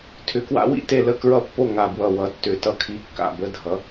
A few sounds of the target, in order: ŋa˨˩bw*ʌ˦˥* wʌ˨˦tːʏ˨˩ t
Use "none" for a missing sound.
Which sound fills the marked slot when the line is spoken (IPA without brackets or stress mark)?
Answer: ʌ˨˩